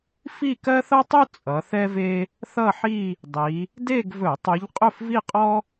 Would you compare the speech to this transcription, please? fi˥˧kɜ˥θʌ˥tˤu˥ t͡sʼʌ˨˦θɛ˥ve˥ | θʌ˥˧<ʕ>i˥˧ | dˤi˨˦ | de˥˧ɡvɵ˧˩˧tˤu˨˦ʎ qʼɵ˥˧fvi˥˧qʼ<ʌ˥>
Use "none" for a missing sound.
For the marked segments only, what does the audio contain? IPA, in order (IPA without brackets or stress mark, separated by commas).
ħ, ɔ˥